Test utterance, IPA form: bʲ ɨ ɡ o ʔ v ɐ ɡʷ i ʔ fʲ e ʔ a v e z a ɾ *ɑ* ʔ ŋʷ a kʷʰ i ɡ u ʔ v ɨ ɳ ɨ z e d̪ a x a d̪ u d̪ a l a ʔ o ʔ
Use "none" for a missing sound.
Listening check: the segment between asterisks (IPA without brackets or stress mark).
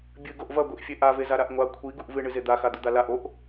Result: a